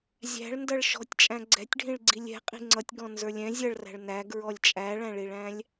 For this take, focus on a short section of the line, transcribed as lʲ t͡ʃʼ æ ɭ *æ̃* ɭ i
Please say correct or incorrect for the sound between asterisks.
correct